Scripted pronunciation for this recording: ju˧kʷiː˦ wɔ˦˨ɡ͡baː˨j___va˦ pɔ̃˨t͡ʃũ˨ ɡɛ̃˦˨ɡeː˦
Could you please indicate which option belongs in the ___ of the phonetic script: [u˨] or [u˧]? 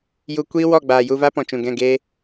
u˧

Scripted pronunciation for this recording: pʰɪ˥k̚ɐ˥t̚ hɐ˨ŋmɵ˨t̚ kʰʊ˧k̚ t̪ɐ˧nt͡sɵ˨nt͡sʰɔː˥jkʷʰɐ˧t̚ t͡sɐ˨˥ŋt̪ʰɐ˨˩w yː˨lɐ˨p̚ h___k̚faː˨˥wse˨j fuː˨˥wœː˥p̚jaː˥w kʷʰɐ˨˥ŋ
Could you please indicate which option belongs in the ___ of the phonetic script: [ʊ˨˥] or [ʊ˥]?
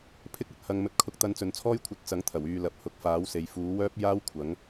ʊ˨˥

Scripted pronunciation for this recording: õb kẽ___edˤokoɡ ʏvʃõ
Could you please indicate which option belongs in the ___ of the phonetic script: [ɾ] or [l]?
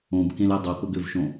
l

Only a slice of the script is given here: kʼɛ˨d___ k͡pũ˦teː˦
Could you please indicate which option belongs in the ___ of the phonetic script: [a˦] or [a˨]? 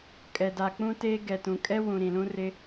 a˨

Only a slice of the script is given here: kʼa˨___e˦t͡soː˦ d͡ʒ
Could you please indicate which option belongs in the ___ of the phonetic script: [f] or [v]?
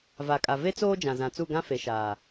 v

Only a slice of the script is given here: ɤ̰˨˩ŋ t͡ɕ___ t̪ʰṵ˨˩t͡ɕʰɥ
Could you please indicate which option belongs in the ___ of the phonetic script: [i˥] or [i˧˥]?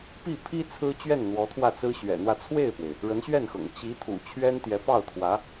i˧˥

